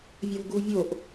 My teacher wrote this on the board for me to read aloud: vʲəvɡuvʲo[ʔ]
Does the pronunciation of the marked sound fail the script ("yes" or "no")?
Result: no